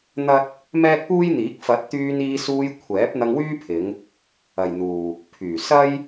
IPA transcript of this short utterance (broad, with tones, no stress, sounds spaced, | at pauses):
n̪ ɐ˥ t̚ | m ɛː˥ k̚ p uː˥ j n̪ iː˨˥ k̚ f ɐ˨˥ t̚ t̪ yː˧ n iː˧ s uː˧ j kʷʰ ɛː˨˥ p̚ n̪ ɐ˧ ŋ w yː˥ pʰ ɪ˨˧ ŋ | ɐ˨ j n̪ uː˨ | pʰ yː˨˩ s ɐ˥ j